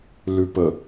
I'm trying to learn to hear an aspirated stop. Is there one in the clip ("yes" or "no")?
no